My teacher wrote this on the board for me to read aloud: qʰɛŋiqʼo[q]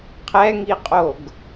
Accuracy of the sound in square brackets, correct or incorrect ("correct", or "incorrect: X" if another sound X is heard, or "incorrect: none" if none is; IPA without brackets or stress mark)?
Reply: incorrect: ɡ